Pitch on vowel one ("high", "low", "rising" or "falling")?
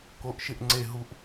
rising